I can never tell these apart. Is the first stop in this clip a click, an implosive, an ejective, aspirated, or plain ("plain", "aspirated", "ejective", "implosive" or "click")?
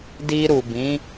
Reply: plain